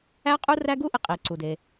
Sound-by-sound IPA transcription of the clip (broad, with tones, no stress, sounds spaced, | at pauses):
æ˥ qʼ u˥ r æ˥ ɡ u˥ ʔ i˩ qʼ i˩ ǀ u˩ d e˩